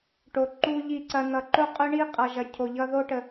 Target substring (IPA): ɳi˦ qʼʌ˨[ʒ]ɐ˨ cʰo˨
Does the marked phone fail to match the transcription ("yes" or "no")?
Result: no